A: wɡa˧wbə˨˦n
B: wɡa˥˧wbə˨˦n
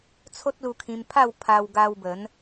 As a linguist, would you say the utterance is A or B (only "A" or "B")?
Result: A